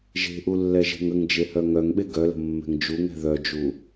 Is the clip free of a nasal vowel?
yes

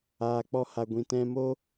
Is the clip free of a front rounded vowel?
yes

